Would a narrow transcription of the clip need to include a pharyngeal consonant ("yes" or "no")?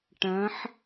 yes